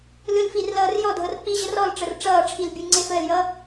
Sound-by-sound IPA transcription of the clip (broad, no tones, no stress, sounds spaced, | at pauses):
l ɯ l f i r l ʌː r j ɔ dʱ ɤ r k͡p i ʑ ə r ɔ l ʈ͡ʂ ə r ʈ͡ʂ ʌː ʈ͡ʂʰ i l bʲ ɯ ŋ͡ǀ e f əː l j ʌː